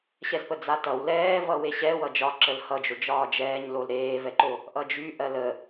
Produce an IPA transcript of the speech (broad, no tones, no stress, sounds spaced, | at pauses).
ɕ ɛ z p ə d͡z a t ʌ w l ɛː v ʌ w e ɕ ɛ w ʌ d͡ʒ ɒ ǁ ə l h ʌ d͡ʒ o d͡ʒ ɒː d͡ʒ ɛː ɲ l o l ɾ eː v ɛ ǃ o | ʔ ʌ d͡ʒ y ʔ ɜ l ə